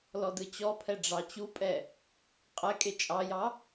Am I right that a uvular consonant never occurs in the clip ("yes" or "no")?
no